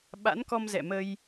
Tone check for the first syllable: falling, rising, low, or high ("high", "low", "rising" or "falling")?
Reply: rising